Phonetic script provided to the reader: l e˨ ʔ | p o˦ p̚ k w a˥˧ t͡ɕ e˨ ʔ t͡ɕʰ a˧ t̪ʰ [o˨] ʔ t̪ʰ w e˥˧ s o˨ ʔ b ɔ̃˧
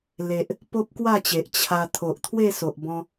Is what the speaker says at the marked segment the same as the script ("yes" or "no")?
yes